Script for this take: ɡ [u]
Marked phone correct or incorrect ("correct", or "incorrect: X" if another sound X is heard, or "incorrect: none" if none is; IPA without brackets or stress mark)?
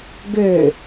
incorrect: ø